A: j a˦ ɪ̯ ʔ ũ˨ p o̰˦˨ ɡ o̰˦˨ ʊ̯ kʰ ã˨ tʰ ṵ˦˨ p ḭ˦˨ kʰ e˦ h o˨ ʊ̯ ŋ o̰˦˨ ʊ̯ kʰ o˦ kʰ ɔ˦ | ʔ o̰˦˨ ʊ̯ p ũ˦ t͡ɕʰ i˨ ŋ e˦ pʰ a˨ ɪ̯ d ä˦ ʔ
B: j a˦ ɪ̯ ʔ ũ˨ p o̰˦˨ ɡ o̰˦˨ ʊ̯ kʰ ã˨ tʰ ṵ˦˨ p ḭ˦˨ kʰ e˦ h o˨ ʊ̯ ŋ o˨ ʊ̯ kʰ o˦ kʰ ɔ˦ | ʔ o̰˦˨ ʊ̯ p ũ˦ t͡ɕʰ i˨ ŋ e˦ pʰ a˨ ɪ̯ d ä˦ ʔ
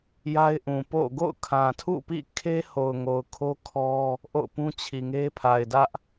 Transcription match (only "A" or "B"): B